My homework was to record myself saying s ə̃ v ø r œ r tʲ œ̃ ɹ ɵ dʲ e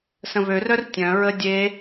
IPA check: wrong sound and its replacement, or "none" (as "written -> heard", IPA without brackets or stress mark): ɵ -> ə